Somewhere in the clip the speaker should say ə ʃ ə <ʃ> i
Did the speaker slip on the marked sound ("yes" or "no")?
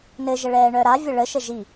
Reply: yes